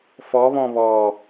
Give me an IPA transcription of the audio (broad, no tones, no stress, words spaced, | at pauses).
fɔβɔ̃ βɔ